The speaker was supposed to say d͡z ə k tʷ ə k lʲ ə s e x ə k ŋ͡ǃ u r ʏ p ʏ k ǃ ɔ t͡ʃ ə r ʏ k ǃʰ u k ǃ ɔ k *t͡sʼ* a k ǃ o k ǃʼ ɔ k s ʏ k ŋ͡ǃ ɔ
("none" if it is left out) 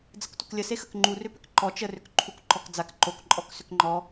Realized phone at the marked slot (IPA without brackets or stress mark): d͡z